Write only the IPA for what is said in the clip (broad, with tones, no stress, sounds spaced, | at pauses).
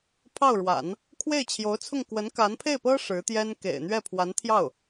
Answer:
pʰ ɑ˥˩ ʊ̯ ɻ w a̰˨˩˦ n | kʰ w e˥˩ ɪ̯ t͡ɕʰ j o˧˥ ʊ̯ t͡sʰ ʊ˥˩ ŋ k w ə˧˥ n k a˧˥ n pʰ e˥˩ ɪ̯ p ɤ˥ ʂ ɻ̩˧˥ t̪ j ɛ˥ n k ḛ˨˩ ɪ̯ n̪ ɥ ɛ˥˩ pʰ w a˧˥ n t̪ʰ j ɑ˥˩ ʊ̯